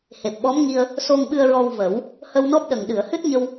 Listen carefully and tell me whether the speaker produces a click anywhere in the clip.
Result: no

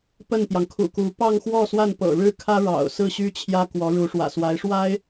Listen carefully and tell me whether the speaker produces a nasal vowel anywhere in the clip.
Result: no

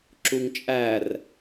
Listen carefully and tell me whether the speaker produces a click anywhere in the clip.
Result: yes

